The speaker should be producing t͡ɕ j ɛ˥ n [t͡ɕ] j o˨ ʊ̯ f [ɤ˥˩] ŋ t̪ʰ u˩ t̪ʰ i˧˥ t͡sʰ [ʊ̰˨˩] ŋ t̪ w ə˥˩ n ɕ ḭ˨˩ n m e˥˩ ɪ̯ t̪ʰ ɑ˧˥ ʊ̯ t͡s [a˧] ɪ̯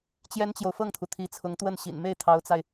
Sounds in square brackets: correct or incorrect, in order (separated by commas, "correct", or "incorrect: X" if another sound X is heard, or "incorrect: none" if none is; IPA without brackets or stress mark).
correct, correct, incorrect: ʊ˧˥, correct